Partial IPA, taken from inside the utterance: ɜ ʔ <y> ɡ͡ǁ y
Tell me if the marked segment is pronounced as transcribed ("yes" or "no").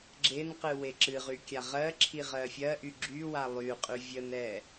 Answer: yes